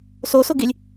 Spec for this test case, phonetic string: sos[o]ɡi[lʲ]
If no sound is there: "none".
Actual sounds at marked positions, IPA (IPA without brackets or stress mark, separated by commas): o, lʲ